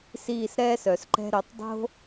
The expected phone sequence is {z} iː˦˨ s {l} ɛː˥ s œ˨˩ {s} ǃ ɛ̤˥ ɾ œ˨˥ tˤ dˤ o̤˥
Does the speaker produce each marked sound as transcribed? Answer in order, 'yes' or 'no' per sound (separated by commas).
no, no, yes